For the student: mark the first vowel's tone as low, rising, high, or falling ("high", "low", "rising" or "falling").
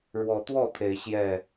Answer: rising